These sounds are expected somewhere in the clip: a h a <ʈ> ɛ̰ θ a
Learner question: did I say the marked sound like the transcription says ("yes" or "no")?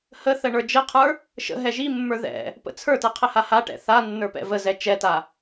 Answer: yes